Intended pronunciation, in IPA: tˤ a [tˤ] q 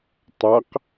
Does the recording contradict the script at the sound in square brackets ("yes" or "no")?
yes